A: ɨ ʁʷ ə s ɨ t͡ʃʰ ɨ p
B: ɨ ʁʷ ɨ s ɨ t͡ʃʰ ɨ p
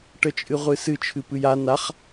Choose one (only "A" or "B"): B